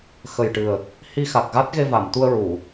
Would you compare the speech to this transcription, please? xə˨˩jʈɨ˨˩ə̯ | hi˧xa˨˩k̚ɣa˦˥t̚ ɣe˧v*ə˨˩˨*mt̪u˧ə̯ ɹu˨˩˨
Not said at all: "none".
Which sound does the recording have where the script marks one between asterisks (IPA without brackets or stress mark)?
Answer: a˨˩˨